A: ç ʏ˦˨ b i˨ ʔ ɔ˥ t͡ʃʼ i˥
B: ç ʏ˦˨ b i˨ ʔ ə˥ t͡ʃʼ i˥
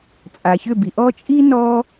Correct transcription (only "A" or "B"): A